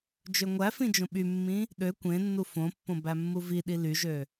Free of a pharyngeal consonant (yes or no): yes